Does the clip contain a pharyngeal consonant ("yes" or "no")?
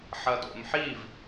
yes